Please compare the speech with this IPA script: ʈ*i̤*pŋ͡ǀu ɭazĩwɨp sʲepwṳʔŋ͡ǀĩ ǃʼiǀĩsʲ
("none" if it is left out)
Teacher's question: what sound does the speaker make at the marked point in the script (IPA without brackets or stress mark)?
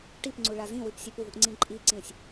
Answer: i